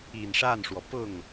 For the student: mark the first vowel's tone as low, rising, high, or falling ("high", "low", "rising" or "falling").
low